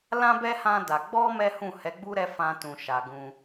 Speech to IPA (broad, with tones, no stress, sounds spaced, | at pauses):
l ã˧ b ɛ˧ h ã˧ d a˨ ɡ͡b ɔ˧ m ɛ˦ h ũ˦˨ h ɛ˨˦ ɡ͡b u˦ ɾ ɛ˧ f ã˧ t ũ˨ ʃ a˨ ɡ ũ˧